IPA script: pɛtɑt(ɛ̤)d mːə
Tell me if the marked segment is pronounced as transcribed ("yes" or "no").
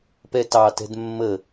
yes